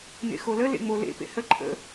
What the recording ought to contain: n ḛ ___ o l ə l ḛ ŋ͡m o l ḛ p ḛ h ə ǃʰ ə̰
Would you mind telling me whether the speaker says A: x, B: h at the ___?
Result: A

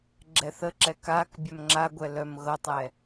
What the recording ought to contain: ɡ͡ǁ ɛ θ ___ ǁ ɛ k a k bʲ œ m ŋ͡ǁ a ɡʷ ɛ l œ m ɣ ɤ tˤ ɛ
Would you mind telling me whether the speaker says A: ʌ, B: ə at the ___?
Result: B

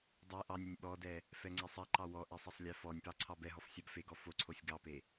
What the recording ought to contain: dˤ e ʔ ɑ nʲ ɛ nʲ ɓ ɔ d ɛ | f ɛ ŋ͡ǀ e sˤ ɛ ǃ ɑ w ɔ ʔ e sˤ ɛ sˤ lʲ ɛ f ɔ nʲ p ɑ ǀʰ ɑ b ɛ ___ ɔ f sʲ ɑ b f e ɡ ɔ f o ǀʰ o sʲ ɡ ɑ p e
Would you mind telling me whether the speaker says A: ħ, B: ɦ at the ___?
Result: B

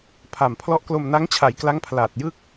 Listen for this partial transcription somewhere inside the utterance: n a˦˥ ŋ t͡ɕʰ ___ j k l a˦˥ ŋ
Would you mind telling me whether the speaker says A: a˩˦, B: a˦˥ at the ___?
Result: A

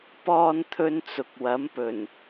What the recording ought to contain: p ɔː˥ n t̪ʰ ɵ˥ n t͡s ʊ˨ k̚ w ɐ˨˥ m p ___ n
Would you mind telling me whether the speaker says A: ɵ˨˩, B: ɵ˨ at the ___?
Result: A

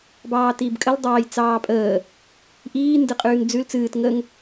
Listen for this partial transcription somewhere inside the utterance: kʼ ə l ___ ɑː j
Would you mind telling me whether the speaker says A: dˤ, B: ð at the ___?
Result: A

